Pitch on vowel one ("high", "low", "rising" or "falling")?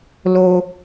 high